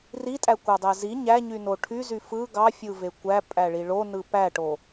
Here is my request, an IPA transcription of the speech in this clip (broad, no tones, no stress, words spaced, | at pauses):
ritʼækʷɑdˤæ zi ɲæɲyno ʈʰyzy fɯ ɡɑfʲɯve kʷæpʼæɭi ɭonɯ pæʈo